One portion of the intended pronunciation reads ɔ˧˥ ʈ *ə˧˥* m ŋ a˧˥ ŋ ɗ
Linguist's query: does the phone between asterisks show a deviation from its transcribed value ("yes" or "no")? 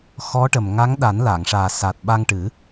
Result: yes